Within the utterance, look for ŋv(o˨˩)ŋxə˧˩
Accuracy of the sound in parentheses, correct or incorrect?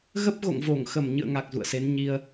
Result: incorrect